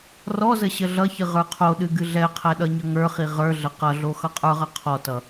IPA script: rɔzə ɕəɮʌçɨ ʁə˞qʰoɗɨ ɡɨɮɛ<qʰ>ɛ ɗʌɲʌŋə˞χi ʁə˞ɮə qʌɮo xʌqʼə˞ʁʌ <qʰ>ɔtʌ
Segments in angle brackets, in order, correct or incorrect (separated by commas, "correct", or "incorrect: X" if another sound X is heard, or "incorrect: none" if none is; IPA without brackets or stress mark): correct, correct